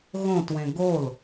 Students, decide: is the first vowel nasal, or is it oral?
nasal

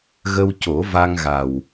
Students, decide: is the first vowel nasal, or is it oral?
oral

